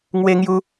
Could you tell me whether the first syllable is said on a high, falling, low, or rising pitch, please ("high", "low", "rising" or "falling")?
high